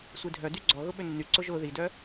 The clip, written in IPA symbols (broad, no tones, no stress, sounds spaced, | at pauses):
sʷ i dʱ œ d y ɡ͡ǀ ɔ ɣ ʊ ɓ ʏ nː y ǀ ʊ ʒ ʊ ð i d œ